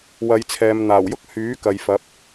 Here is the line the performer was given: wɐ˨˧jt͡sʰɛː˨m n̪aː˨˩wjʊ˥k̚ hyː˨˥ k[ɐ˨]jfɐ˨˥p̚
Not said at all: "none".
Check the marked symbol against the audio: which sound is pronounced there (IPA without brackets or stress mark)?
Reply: ɐ˨